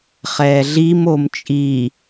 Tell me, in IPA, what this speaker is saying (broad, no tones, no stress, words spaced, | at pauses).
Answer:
χɛːɮim omt͡ʃʼiː